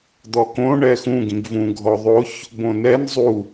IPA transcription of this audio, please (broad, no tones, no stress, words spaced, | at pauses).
d̪ɔkõ ɳɛxũ ɡĩɡvũ ɡʱɔðˤoç | bõnɛn zˤu